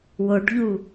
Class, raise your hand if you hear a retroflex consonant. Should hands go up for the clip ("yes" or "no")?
yes